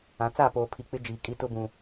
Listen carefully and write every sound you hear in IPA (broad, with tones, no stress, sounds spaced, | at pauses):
ã˨˦ t͡s a˦˨ p oː˨ pʰ i˨ k͡p ɪ˦ d͡ʒ iː˨ kʼ i˦ t ʊ˦ b ũ˨